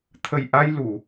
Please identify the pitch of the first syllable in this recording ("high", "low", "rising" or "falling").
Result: low